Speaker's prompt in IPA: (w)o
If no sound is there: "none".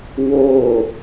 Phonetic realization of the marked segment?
w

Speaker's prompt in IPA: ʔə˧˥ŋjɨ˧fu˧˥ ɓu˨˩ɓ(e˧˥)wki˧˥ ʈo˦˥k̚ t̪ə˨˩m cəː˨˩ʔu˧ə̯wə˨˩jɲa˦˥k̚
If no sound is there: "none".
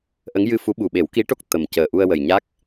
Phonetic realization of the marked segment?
e˨˩˦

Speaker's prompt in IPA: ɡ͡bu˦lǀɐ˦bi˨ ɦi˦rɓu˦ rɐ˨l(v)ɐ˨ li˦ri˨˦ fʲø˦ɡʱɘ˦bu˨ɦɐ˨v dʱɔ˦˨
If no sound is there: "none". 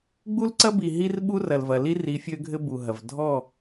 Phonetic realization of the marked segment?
v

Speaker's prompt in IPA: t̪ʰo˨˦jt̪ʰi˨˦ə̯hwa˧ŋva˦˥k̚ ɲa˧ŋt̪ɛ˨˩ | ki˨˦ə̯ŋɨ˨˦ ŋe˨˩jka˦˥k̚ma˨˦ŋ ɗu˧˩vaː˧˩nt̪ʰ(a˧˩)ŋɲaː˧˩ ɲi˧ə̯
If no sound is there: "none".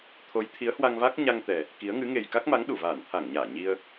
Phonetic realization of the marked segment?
a˧˩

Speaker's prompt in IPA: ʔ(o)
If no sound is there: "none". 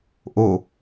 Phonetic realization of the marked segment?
o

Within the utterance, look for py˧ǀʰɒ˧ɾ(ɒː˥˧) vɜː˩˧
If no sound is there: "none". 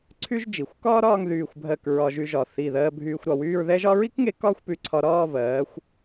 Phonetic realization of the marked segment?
ɒː˥˧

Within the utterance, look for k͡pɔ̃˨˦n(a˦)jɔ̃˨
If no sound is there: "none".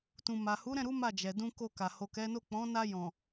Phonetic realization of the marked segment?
a˧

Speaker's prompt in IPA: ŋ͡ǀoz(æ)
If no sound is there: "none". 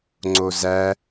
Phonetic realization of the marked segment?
æ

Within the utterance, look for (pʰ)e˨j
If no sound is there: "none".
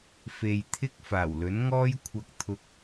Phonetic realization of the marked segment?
f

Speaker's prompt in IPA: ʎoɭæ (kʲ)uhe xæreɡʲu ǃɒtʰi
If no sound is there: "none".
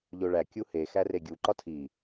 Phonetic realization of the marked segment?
kʲ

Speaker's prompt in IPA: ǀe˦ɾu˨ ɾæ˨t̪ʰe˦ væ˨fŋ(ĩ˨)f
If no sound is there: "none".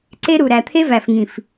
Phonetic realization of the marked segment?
ĩ˨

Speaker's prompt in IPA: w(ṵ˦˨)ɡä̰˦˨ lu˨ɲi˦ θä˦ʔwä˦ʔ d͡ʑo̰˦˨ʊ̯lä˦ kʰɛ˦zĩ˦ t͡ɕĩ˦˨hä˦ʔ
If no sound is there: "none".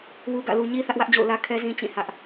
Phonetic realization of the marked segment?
u˦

